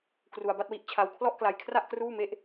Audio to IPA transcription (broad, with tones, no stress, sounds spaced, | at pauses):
k r u˧ a̯ b a˥˩ t̚ w i˦˥ ʔ t͡ɕʰ a˧ w kʰ l ɔ˥˩ ʔ k l a˧ j kʰ r a˥˩ ʔ k r uː˥˩ m e˥˩ ʔ